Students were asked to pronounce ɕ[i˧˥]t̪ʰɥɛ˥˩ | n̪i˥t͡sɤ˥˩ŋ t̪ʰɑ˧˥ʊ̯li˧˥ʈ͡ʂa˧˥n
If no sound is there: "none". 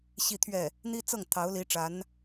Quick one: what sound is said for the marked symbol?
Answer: i˥˧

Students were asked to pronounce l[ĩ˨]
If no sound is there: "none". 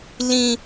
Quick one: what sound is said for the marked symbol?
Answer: ĩ˦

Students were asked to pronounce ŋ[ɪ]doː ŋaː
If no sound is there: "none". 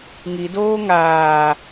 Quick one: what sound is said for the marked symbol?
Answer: i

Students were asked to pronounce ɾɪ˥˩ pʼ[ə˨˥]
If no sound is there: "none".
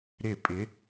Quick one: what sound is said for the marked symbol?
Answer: ɪ˨˥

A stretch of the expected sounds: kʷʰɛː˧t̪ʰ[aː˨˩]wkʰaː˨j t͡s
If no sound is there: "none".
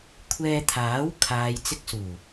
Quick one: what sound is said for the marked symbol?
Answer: aː˨˥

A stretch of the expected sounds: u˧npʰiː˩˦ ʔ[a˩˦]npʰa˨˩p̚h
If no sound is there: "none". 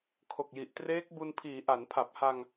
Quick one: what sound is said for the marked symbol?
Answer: a˩˦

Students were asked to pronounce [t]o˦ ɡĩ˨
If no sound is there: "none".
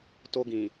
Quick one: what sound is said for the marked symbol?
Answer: t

